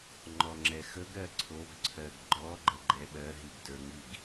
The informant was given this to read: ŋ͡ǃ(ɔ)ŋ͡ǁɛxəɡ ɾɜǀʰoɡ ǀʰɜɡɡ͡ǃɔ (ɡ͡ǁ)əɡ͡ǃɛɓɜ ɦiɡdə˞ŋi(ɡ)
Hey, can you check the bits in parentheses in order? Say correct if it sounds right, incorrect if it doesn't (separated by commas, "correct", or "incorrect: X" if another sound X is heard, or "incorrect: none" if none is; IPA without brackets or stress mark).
correct, incorrect: ɡ͡ǃ, correct